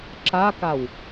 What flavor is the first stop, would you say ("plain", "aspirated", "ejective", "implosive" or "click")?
click